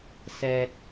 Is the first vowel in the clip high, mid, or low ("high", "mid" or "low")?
mid